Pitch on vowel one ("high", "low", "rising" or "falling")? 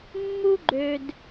high